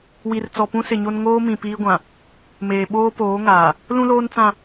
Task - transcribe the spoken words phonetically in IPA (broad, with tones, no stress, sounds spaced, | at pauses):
w i˨ r t͡s ɔ˨ p ũ˦ s ɪ˨ ɲ o˦ n ŋ oː˦ m ĩ˨ p iː˦ ɡʷ ã˨ | m eː˨ ɓ oː˦ p oː˨˦ ŋ aː˨ | l ũ˦ l oː˦ n t͡s ã˦˨